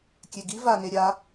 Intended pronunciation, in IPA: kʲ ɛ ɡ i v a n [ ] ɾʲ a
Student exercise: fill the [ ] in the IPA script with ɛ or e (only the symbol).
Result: e